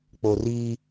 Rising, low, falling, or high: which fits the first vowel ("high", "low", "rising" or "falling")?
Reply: low